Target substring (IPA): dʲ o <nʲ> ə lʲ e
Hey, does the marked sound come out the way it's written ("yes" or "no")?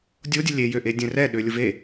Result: no